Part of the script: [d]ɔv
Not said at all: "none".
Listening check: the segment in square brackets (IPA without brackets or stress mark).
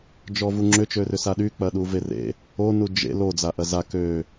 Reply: d͡ʒ